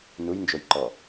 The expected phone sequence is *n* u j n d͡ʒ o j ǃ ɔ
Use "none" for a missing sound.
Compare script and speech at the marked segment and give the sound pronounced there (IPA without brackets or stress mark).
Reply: n